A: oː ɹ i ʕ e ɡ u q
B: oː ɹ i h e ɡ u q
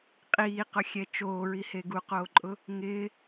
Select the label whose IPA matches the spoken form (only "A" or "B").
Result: B